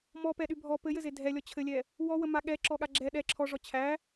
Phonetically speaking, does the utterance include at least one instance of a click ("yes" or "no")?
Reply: yes